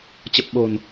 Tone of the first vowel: low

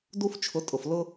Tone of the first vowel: high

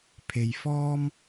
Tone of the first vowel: low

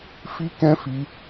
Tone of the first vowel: high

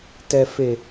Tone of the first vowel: low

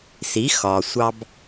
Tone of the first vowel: rising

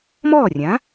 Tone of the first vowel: falling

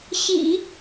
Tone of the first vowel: low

